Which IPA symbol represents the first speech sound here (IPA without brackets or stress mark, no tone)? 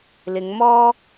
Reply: l